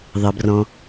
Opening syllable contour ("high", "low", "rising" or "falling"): low